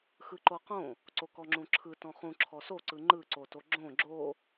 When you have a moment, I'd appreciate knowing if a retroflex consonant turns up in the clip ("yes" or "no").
no